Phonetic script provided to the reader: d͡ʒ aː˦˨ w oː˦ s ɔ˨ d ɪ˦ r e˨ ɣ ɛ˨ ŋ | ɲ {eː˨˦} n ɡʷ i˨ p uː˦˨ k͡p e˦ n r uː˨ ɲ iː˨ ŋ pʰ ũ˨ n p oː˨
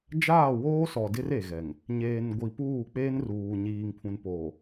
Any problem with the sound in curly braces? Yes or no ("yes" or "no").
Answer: yes